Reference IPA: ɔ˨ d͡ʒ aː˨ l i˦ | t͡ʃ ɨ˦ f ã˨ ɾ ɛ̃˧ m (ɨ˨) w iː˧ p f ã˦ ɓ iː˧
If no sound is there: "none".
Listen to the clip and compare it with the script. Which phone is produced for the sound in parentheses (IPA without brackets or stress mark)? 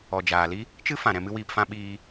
ɨ˦